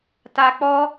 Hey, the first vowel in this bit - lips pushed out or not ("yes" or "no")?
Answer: no